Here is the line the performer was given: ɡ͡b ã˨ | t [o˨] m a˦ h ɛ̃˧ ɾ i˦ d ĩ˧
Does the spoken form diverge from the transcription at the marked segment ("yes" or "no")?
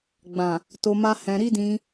yes